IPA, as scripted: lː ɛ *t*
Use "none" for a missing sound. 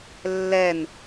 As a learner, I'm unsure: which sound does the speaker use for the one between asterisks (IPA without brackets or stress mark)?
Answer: n